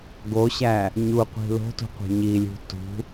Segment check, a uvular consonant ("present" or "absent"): present